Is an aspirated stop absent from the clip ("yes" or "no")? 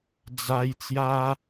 yes